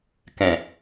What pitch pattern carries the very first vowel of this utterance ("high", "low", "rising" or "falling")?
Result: low